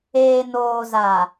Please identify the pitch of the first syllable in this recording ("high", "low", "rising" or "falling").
low